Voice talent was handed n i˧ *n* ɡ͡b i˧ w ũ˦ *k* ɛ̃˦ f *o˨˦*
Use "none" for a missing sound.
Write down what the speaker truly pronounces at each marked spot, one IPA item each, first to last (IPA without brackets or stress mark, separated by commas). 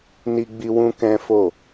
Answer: none, k, o˦˨